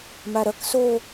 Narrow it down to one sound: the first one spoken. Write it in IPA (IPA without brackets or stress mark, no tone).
m